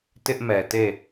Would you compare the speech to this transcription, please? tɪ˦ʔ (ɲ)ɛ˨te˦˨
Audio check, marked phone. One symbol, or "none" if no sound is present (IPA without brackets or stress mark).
m